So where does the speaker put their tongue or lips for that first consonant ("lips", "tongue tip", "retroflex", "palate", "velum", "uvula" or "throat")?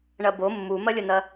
retroflex